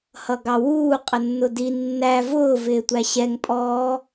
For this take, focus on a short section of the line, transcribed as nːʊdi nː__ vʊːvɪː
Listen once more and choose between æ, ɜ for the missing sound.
æ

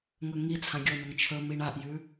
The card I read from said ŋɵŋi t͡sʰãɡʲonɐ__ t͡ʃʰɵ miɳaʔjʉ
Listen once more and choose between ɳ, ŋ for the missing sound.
ŋ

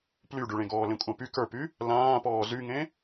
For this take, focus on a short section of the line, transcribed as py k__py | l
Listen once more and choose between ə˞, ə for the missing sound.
ə˞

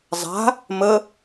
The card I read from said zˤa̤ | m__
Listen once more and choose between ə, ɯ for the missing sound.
ə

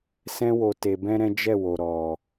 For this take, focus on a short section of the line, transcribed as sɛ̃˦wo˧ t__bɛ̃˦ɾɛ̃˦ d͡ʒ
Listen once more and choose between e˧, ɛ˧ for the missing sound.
e˧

